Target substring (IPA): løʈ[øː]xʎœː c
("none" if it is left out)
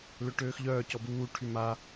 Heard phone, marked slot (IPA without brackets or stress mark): øː